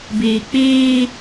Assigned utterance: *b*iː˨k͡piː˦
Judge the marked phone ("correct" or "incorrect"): correct